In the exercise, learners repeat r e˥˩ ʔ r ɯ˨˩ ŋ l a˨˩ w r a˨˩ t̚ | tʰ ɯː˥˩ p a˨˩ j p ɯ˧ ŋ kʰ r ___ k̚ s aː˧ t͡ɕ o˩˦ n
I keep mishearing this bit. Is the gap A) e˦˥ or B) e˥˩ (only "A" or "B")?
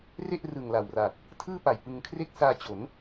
B